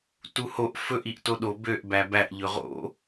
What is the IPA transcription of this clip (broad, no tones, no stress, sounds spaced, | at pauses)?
t u h o ʔ f ɵ ʔ i ʔ t o ɗ o b ø ʔ b æ b æ ʔ ʎ ɵ ʁ o̰